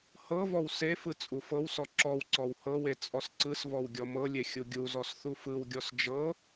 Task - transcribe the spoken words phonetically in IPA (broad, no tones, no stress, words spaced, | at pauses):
hɤvɔw sefɯ t͡sʼufɤwsɔ ǁɔwǀɔw hɤwe t͡sʼɔsǀɯsvɔw ɡʲɔmɤlʲe xʲuɡʲuzɔs θufɯwɡʲɔs d͡ʒɤ